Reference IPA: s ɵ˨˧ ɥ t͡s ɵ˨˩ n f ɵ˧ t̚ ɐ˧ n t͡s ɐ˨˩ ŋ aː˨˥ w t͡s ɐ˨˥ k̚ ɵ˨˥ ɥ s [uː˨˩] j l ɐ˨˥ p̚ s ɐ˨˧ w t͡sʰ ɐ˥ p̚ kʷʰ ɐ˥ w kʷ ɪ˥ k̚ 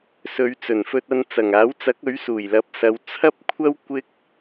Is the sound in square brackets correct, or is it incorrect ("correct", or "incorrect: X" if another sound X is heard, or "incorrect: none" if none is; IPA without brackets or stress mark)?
correct